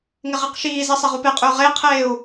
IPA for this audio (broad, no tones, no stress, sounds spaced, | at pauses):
ŋ ɪ ʁ i q ʃ iː z e sˤ e ʁ u p e qʼ ʏː ʁ e i̯ qʰ eː u̯